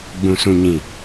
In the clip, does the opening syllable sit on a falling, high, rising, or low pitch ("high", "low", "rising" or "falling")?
low